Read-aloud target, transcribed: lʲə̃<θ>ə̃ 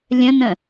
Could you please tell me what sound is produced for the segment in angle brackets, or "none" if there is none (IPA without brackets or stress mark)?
n